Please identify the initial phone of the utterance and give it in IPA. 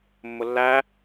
mː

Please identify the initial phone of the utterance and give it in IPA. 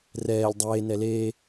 r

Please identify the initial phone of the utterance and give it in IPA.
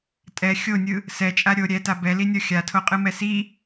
tʼ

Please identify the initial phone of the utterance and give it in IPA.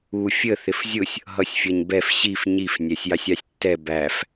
u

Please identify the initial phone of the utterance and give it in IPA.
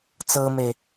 t͡s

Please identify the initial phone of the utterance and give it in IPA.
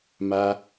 m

